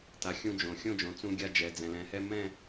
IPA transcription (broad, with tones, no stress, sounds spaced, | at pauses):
t a˩ xʲ ũ˧ d͡ʒ õ˩ xʲ õ˥˧ d͡ʒ õ˩ t͡s ũ˧ ɡʲ a˧ d͡ʒ ɛ˩ d͡z ɛ̃˩ l ɛ̃˩ h ɛ˧ m ɛ̃˥˧